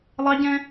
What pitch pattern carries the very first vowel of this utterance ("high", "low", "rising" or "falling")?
high